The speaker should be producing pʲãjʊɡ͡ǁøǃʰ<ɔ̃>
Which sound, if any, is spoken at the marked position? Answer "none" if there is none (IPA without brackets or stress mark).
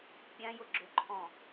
ɔ̃